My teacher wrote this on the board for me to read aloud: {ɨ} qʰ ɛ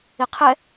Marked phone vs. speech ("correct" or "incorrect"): incorrect